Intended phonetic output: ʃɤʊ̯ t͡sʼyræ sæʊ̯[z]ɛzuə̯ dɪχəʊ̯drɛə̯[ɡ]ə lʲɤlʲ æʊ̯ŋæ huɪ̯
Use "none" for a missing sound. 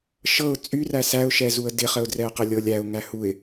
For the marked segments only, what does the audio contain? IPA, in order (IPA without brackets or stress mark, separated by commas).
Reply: ʃ, q